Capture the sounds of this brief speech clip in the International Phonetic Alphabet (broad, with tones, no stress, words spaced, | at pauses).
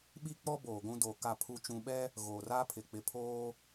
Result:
ɓi˦k͡pɔ˦ boː˨ɡʷũ˦doː˨ ka˨pʰu˨t͡ʃũ˨ɓɛ˦ | ɣoː˨raː˦pʰɪ˨ k͡pɪ˨pʰoː˦